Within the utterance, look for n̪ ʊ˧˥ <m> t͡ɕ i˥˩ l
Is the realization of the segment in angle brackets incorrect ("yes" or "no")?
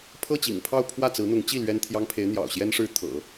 yes